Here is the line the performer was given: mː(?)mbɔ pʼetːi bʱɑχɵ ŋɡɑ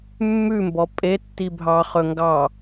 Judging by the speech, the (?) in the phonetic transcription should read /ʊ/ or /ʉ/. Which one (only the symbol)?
ʉ